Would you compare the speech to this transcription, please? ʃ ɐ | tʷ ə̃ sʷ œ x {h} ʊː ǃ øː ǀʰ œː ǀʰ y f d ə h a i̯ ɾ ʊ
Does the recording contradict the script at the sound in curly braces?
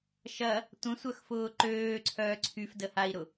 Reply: yes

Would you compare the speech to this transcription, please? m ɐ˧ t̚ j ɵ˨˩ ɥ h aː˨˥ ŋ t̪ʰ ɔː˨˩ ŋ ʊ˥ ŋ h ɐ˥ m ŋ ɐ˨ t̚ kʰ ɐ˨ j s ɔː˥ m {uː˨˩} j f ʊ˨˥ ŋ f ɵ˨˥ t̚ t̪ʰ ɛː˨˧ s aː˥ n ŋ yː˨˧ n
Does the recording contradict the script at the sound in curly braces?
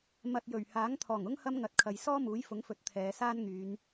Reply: yes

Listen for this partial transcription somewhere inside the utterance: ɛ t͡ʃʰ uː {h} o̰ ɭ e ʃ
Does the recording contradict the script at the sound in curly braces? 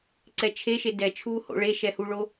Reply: no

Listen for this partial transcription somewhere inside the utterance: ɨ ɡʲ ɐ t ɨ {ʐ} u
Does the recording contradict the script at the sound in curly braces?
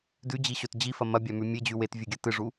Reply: no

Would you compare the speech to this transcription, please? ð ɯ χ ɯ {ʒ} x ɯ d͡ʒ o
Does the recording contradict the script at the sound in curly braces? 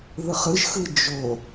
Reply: no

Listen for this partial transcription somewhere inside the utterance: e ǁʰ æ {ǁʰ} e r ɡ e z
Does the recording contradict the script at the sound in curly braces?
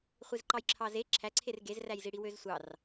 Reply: yes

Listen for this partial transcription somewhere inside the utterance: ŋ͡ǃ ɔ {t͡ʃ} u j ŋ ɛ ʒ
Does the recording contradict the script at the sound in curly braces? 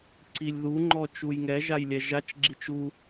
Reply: no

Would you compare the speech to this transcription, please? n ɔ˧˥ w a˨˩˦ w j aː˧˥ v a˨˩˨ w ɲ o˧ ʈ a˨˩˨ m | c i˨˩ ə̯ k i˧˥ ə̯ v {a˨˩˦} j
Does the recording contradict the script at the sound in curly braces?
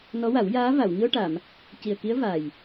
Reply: yes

